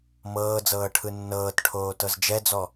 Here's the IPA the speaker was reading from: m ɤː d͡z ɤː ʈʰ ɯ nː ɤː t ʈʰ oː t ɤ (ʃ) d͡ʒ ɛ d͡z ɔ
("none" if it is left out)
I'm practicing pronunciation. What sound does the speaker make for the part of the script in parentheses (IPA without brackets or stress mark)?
z